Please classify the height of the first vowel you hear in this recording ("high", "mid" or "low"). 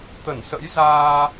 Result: mid